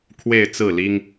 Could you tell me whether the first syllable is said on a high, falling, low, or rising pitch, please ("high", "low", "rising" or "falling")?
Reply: falling